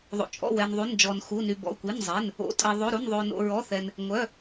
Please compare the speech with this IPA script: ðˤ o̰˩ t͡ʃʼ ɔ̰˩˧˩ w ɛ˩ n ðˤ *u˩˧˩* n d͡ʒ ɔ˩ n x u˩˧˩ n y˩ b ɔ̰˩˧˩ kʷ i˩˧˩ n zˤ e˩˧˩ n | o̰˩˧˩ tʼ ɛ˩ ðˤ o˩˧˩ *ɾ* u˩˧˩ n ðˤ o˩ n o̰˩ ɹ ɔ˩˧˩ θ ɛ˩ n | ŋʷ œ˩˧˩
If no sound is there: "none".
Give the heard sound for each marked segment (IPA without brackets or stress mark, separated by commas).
u˩˧˩, ɾ